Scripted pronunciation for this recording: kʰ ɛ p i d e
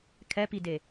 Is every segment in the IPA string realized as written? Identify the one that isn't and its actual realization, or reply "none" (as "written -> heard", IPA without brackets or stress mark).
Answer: none